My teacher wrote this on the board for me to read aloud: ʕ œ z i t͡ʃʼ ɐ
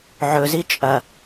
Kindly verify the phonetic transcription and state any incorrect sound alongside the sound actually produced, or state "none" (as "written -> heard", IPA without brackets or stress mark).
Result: œ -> ɵ